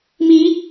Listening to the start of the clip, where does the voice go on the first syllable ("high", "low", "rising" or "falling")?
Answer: rising